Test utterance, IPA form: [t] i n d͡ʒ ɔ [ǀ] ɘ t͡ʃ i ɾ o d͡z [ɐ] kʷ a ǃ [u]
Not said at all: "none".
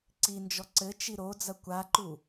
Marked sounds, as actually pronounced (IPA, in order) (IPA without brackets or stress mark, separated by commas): ǀ, ǀ, ɐ, u